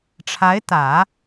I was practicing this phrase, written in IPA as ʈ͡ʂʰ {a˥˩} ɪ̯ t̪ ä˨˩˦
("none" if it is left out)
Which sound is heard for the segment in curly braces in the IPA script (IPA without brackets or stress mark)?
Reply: a˧˥